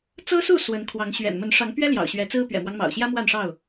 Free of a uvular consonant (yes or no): yes